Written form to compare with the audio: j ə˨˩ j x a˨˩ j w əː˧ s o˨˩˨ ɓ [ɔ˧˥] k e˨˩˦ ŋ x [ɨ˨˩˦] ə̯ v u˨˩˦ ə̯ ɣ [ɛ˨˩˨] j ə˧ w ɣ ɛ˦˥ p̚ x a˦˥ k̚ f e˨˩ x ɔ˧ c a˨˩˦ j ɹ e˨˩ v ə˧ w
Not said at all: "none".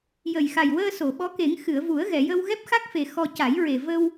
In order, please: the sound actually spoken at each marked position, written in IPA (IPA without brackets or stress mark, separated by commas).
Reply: ɔ˧˥, ɨ˨˩˨, ɛ˨˩˨